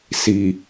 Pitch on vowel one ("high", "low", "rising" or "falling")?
low